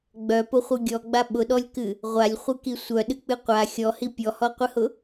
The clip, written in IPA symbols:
ɡ͡b œ p ʊ χʷ ɨ ɡʲ ɔ ɡ͡b a ɓ ʊ ɗ ɔ lʲ k ɨ | ʁʷ a lʲ χʷ ɨ k i sʷ œ ɗ ɨ k͡p ɨ qʷ a xʲ ɔ h i pʲ ɔ h ɔ qʷ ɨ h ʊ

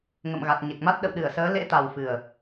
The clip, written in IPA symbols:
ŋ ə̰˧˨ m ɣ a˨˩ t̚ ɲ e˨˩ k̚ m a˦˥ t̚ ɗ ə̰˧˨ w ɗ ɨ˧˩ ə̯ s əː˨˦ l ḛ˧˥ t̪ a˨˩ w f ɨ˨˩ ə̯

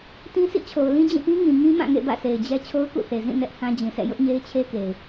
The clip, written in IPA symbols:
t ĩ˦ s ḭ˦˨ t͡ɕʰ o˨ ʊ̯ l ĩ˦ d͡ʑ ĩ˦˨ p ĩ˦ ŋ ĩ˨ ŋ ĩ˦ m ã˦˨ ŋ ḛ˦˨ b ä̰˦˨ sʰ e˨ ɪ̯ d͡ʑ ɛ˦ t͡ɕʰ o˦ ʊ̯ k ṵ˦˨ θ e˨ z ĩ˦˨ n ɛ˦ ʔ h ã˦ d͡ʑ ĩ˨ sʰ ɛ̰˦˨ j ʊ˦ ʔ ɲ e˦ ɪ̯ t͡ɕʰ e˦ k e˨ ɪ̯

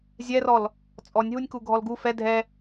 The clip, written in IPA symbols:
zʲ ɛ r ɔ l | t͡sʼ ɔ nʲ ɦ u nʲ k u ɡʱ ɔ l ɡ u f ɛ dʱ ɛ

